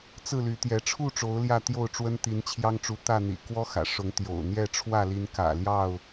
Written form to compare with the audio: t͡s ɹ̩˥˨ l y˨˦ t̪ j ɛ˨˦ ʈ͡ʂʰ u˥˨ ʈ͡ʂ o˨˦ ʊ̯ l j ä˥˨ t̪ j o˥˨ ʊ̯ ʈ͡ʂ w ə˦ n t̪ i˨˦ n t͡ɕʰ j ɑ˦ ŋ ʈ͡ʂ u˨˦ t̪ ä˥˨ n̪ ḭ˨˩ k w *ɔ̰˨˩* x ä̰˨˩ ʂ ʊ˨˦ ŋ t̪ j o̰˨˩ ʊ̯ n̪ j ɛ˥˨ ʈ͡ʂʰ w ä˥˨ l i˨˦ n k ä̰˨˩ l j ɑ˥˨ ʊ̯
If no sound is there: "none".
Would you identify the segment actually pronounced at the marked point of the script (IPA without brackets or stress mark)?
ɔ˦